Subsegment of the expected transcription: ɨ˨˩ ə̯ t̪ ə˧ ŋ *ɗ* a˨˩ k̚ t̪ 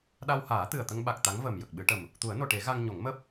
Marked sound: incorrect: ɓ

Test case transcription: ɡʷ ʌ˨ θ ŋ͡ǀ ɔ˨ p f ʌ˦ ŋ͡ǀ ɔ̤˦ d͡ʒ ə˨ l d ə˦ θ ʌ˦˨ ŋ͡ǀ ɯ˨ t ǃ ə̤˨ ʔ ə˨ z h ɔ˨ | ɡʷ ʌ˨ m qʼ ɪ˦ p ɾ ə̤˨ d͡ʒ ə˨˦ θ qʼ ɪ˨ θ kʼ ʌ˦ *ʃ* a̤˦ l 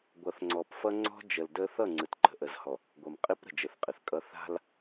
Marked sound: incorrect: θ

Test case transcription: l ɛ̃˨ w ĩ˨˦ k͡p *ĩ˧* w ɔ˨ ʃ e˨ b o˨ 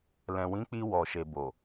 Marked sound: incorrect: i˧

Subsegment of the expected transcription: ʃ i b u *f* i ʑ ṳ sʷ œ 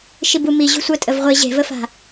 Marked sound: incorrect: m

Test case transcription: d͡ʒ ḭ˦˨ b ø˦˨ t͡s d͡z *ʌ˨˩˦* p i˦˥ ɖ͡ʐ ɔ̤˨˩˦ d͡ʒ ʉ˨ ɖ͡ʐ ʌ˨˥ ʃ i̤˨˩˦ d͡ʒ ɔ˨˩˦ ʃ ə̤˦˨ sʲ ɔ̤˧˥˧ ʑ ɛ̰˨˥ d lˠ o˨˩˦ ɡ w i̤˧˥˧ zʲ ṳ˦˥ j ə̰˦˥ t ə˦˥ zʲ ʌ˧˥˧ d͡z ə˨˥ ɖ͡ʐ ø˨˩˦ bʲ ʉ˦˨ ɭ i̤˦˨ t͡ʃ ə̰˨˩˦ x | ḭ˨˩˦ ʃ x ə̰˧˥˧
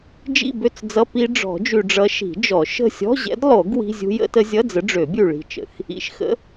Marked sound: incorrect: ʌ˧˥˧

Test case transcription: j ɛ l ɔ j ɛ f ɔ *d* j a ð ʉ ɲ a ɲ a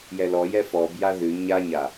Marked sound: incorrect: b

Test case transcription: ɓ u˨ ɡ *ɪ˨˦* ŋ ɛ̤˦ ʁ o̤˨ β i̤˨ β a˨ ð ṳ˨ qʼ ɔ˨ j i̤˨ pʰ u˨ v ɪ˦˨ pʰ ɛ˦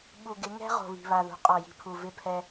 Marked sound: correct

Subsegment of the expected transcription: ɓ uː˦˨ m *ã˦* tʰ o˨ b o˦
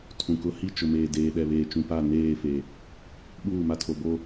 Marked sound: incorrect: a˦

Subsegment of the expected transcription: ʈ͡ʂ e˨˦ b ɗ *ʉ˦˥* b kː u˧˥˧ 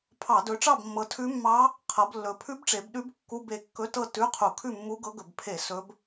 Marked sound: correct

